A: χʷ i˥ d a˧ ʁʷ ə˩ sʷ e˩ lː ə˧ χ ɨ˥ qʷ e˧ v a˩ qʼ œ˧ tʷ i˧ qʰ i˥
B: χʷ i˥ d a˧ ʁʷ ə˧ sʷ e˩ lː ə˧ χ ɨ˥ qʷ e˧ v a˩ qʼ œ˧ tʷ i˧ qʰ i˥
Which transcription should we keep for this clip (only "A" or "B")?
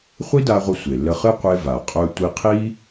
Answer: B